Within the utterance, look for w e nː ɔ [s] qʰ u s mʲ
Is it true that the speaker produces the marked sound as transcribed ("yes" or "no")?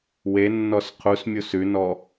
yes